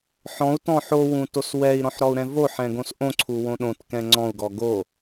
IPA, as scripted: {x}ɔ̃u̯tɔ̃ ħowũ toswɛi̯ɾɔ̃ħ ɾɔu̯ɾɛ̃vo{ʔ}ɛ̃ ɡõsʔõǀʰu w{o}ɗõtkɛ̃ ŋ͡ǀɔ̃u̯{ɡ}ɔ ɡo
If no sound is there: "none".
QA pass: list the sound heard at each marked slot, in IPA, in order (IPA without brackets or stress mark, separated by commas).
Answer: ħ, ħ, õ, ɡ